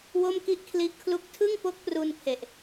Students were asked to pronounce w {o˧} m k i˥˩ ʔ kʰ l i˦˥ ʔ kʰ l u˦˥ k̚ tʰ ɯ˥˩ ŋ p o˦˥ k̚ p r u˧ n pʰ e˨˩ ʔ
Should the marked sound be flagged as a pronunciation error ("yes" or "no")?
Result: yes